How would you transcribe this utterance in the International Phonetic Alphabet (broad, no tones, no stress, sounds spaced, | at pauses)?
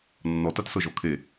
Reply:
nː ɔ t a t s ɤ ʒ ɔ kʰ e